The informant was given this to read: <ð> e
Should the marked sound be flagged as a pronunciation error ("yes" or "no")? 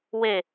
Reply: yes